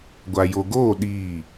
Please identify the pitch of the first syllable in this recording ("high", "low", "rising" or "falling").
low